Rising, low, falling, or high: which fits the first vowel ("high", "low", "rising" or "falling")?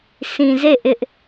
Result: low